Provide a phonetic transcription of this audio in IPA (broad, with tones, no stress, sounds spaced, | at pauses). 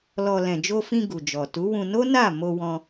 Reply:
l ɔ˧ l ɛ̃˨ d͡ʒ o˧ f ĩ˧ ɡ u˨ d͡ʒ ɔ˨ t u˨˦ w ũ˧ n o˦ n a˦˨ m o˧ w ɔ̃˧